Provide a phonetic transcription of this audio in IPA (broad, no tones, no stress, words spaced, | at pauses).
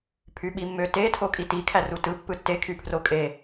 pʰyɓimːøte tʰokʼiti kʰærutɯ pːɯtːe kʰypʰrokʼe